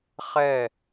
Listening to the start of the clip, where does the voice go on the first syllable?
falling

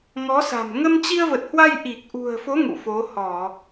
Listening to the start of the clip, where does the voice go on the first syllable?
rising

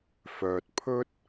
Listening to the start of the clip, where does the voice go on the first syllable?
low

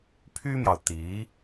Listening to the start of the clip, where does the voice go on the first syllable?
high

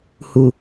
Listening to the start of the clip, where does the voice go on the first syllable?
low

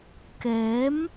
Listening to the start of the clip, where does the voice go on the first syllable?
rising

